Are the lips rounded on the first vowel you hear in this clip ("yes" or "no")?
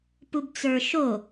yes